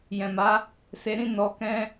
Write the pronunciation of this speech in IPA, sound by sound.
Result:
j ɛ̃˨ m a˨˦ | s e˧ ɾ ĩ˦ n ɔ˧ k ɛ̃˦

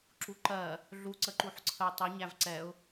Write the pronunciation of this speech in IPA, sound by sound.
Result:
ǁ u ǃ ɜ | ɮ u ǀ ə ǃ u ħ ǀʰ ə w tˤ i ɲ æ v ǀ ɛ ʊ̯

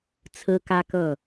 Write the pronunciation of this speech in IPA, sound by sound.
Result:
t͡sʰ ɹ̩˥ k ä˥ k ɤ˥˩

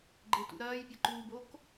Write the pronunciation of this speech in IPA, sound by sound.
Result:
ɡ͡ǃ ɪ t ṵ ɾ ɐː j pʲ ɐ ǃ uː b o k

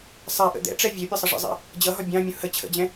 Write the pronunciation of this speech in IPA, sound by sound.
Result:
sˤ ɛ ʔ ə̰ d̪ ɛ̰ ʈ͡ʂ ɛ vʲ ɜ pʲ ʌ sˤ ə ʐ ə̰ zˤ ɛ̰ | d͡ʑ ʌ ɦ ɒ bʲ ɑ̃ mʲ ũ h ə t͡ɕʰ ə̰ d͡ʑ ɛ̃

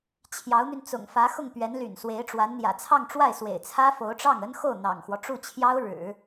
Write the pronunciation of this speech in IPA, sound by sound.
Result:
t͡ɕʰ j ɑ˧˥ ʊ̯ n̪ y˧ n t͡s ʊ̰˨˩ ŋ f ä˧˥ x ʊ˥˩ ŋ p ɥ ɛ˧˥ n l y̰˨˩ n s w e˧˥ ɪ̯ ʈ͡ʂ w a˧˥ n n̪ j ä̰˨˩ t͡sʰ ɑ˥˧ ŋ ʈ͡ʂ w a˥˩ ɪ̯ s w ḛ˨˩ ɪ̯ t͡sʰ ä˥ f o˧˥ ʊ̯ ʈ͡ʂ ɑ˥˩ ŋ ə˥ n x o˥˩ ʊ̯ n̪ ɑ̰˨˩ ŋ x w ɔ˦ ʈ͡ʂ u˥˩ t͡ɕʰ j ɑ˥ ʊ̯ ɻ ɻ̩˨˩˦

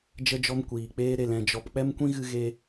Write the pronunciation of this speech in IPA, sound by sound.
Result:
d͡ʒ ə˧ d͡ʒ ɔ˧ m kʷ iː˨ k͡p eː˦ ɾ e˨ l ɛ̃˨ d͡ʒ ɔ˨ p k͡p ɛ˦ m kʷ ĩ˦ ɣ ɨ˧ ɣ e˧

